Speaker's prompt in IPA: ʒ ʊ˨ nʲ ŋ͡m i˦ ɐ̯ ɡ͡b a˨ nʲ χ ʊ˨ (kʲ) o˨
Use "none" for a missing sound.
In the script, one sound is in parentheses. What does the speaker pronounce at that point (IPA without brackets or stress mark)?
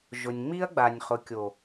kʲ